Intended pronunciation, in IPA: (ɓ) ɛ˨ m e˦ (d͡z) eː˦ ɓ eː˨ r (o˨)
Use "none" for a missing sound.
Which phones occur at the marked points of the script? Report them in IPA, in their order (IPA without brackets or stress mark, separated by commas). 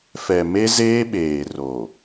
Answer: f, z, o˨